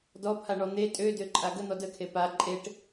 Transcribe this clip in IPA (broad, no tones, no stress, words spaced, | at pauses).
dɔpʰaɳɔ n̪e tʼødøǃʼa ɡən̪ɔ dəkʰe pa ǃʼeʈ